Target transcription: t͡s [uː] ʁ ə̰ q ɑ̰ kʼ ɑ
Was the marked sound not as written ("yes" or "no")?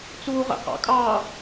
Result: no